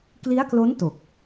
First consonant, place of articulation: velar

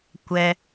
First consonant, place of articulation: velar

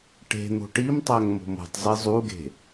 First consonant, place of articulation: retroflex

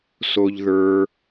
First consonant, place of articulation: alveolar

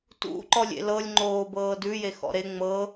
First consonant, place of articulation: alveolar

